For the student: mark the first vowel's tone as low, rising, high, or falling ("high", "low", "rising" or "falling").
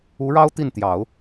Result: rising